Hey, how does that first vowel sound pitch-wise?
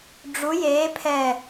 rising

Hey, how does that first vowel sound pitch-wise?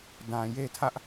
low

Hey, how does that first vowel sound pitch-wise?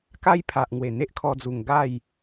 high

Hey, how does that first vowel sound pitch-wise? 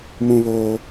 high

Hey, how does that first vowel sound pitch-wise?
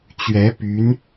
rising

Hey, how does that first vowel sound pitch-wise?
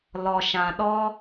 low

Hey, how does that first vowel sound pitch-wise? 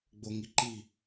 low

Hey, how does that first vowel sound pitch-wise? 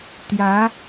rising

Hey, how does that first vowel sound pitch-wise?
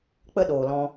high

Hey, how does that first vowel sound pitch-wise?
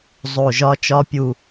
low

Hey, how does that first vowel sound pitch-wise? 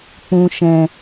low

